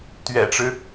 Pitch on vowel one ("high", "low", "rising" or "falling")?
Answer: low